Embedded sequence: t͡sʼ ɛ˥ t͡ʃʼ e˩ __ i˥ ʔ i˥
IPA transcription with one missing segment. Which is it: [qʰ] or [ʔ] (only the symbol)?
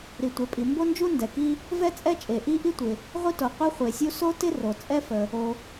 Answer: ʔ